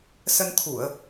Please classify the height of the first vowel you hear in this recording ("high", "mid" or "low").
mid